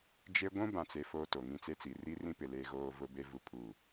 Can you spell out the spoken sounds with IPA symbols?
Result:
d͡ʒe˦ ɡʷũ˦bã˨t͡se˨ fo˦to˨ ŋĩ˦t͡se˦t͡si˨ ri˦ rĩ˦pɪ˨ le˦ɣoː˦ vʊ˦be˦vu˦ pʰu˦˨

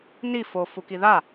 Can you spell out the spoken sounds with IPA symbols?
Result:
ni fofuki ða

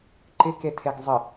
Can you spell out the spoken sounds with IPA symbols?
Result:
ǃɪketʰeɡ zˤɪ

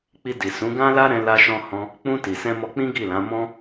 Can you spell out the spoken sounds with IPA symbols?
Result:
k͡pi˧ di˨ sũ˨˦ɡã˦la˦ɾɛ̃˧ la˧ʃɔ̃˧hɔ̃˧ | k͡pũ˧ ti˨ sɛ̃˧mɔ˧ k͡pĩ˦ɡi˦˨lã˨˦ mɔ̃˦

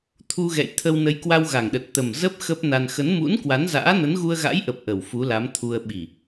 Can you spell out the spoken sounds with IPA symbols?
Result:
t̪ʰu˧ɣɛ̰˧˨jt̪ʰə˧w nə˨˦jkwa˧wɣa˨˩ŋɗə˨˩t̚ t̪ə˨˩mzə˦˥p̚ xə˦˥p̚na˧n xə˨˦nmṵ˧˥nkwa˨˦nza̰ː˧˥ nə˨˦nɣu˧ə̯ɣa̰˧˥jʔə˨˩p̚ ʔə˨˩wfu˨˦la˨˦mt̪ʰu˧ə̯ ɓi˨˩

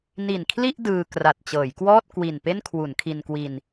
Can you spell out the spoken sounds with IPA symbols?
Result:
ni˨˩nkʰli˥˩ʔ dɯː˧ kra˨˩t̚t͡ɕɤː˩˦jkwɔː˥˩t̚ kwi˨˩npe˥˩n kʰwu˩˦nkʰi˧nkwi˧n

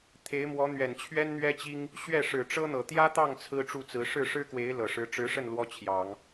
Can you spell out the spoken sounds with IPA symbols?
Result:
t̪ʰe˧˥ɪ̯mwɔ˧˥ n̪ɥɛ˨˩nt͡ɕʰɥɛ˥nn̪ɥɛ˥t͡ɕi˥ŋ | ɕɥɛ˥˩ʂɻ̩˨˩ʈ͡ʂɤ˥n̪ɤ˨˩ t̪jä˥t̪ɑ˥˩ŋ t͡sʰɹ̩˥ʈ͡ʂu˥˩t͡sɹ̩˧˥ ʂɻ̩˥˩ʂɻ̩˥kwe˧˥ɪ̯ lɤ˨˩ʂɻ̩˧˥ ʈ͡ʂɻ̩˧˥ʂə˥˩n lwɔ˥t͡ɕʰjɑ˨˩˦ŋ

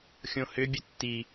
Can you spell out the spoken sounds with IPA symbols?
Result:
xʲõhʏ bʲətːi

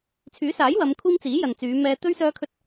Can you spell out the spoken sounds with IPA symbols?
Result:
t͡sʰyː˨˥saː˨˥jwɐ˨˧mkʷʰiː˧m t͡siː˨˥jɐ˨nt͡syː˨˧ mɛː˧t̪ɵ˥ɥ sœː˥kʰɵ˥t̚

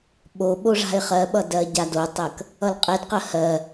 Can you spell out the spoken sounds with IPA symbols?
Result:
ɓo ɓoʐa̤ɪ̯χɜɓʌ dɜɟadotˤɜk | ʌlqʼedqɜ hɜ

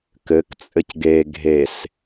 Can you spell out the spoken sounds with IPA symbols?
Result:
kɘk t͡sʼɘcɡe ɡʱes

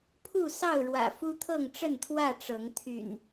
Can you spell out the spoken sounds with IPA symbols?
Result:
pʰu˥˨sɑ˥˨ʊ̯ɻwä̰˨˩ fu˦t̪ʰɤ˥˨ŋʈ͡ʂə˥˨nt̪ʰwä˥˨ ʈ͡ʂɤ˨˦ŋ t̪ʰy̰˨˩n

